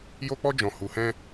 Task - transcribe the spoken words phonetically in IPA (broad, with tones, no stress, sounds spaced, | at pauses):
j o˦ k͡p ɔ˦ d͡ʒ ɔ̃˧ h u˧ h ɛ̃˦